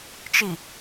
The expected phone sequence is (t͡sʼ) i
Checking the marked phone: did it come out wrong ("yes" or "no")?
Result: yes